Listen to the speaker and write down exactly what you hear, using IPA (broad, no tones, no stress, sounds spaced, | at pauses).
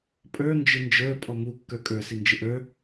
pʼ ə˞ n d͡ʒ ɪ n d͡ʒ ə˞ pʼ ɔ m u kː ə˞ kʼ ə˞ s i n d͡ʒ ɪ ʔ ə˞